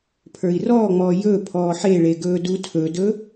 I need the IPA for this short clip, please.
pʰ ə˞ i̯ r ɔː ŋ͡m ɔː j ɵ pʰ ɔː ħ e ɭ e ɡ ɵː d u tʰ ɵ d ɵ

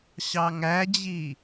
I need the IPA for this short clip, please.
ɕ ɑ ŋ æ d͡ʑ i

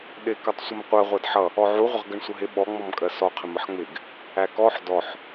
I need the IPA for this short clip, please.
ɗ ɪ k ʌ tˤ sʷ ə m qʷ ɜ ʁʷ æ d ħ ʌ | ɔ ʕ u ʁʷ ɪ ʁ ɡ ə ɳ sʷ ə ɦ ɪ ɓ ɔ ŋ͡m ɔ m kʼ ɜ s ɔ qʰ ɪ m ə ħ ŋ͡m ɪ ɡ | æ k ɔ ħ d ɔ ħ

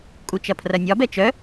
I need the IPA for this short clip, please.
kʼ u t͡ʃ ɐ pʰ r ɐ nʲ ɒ b ɛ t͡ʃ œ

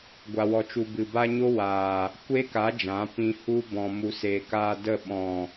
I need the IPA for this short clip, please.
ɡʷ a˧ w ɔ˧ t͡ʃ u˧ b ɨ˨ b a˦ ɲ o˦ w aː˨ | kʷ e˦ k a˨˦ d͡ʒ ã˨˦ p ĩ˧ h u˦ b ɔ̃˨ m u˨ s eː˨ k aː˧ d ə˦˨ ɓ ɔ̃˨

